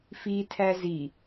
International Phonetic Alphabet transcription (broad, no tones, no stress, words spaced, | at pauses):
fitʰæ zi